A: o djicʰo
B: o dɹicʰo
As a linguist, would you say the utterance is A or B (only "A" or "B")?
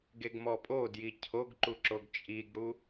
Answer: A